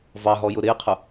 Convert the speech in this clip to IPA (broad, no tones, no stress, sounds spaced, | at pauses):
v ɑ ɦ ɔ j ʊ ɾ ɪː qʰ ʊ